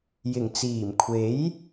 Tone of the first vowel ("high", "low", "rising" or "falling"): low